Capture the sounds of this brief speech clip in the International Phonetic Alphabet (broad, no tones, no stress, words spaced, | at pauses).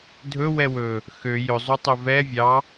dʱɵ wɛwɵ | xø jɵzˤu tˤɵvɛ vʲɑ